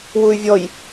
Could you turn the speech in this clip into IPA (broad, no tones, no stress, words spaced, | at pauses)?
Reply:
wuy̯vʲɔj